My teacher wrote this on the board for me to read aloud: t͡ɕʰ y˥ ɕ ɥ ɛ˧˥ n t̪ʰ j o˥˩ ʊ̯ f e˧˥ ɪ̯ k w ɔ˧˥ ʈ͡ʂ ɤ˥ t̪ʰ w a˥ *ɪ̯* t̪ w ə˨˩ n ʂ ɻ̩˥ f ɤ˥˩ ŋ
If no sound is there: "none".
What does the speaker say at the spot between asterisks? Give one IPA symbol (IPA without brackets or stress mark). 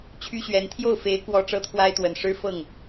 ɪ̯